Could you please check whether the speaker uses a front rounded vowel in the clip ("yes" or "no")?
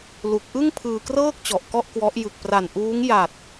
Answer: no